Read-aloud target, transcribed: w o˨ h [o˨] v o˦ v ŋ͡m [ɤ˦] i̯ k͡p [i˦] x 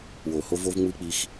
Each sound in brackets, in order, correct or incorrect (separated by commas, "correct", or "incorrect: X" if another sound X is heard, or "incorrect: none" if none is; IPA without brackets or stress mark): incorrect: o˦, incorrect: ɯ˦, correct